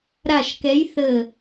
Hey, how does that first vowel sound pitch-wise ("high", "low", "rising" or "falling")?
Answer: falling